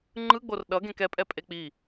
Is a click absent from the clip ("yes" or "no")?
no